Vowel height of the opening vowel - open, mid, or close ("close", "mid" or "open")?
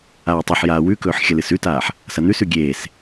open